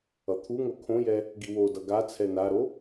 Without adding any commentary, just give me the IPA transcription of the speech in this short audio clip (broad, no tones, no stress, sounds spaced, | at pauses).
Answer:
ʌ t̪ʰ u ŋ o kʰ õ j ɛ | ɡ i w o d ʌ ɡ a t͡sʰ ɛ n a ɾ o